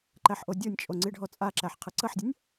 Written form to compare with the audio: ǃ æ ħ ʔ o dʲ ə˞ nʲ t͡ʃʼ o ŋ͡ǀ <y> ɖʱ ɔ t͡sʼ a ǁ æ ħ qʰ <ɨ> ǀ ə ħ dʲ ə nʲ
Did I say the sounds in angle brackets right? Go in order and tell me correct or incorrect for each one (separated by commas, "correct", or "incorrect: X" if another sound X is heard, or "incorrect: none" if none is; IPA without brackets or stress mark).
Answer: incorrect: i, correct